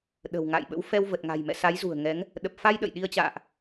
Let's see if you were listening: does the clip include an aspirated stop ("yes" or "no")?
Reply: no